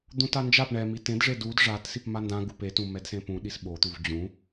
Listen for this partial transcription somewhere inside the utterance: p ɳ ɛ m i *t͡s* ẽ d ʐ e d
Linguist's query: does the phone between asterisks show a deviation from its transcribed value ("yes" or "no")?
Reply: yes